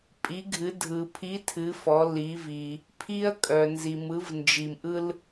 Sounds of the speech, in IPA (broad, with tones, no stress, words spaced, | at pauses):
pʼi˩˧ɡʱɨ˩˧ dʱɯ˩ pʰi˨˥tʰɨ˩˧ fɔ˩˧li˩˧vi˩ | pʰi˧ɐ̯kʼœ˩nzi˩ mɯ˩˧vnd͡ʒi˩mʔɯ˧l